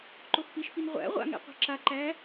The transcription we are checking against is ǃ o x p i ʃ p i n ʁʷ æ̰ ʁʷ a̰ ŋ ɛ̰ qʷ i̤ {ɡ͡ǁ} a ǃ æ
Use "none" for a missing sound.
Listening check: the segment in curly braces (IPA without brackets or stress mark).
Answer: ǁ